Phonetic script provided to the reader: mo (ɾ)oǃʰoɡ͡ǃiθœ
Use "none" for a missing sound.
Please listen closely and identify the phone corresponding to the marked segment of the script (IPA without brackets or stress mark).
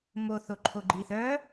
θ